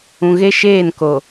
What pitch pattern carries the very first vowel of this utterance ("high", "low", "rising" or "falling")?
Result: low